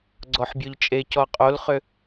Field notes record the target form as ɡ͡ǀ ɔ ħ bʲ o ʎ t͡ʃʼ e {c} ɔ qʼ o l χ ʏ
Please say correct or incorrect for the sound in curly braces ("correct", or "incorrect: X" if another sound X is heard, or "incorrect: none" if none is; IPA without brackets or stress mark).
correct